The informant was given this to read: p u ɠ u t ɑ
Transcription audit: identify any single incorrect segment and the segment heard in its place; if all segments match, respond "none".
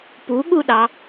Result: t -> ɗ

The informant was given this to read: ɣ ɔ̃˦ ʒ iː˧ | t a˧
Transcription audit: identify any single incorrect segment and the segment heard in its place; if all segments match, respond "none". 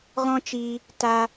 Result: ʒ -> t͡ʃ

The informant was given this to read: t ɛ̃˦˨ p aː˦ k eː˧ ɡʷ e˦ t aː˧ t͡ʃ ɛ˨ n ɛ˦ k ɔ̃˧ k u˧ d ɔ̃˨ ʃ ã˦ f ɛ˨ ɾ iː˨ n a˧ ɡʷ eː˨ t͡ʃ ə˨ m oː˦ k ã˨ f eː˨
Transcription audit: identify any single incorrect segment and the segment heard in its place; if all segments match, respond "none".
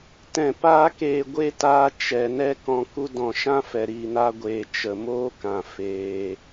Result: none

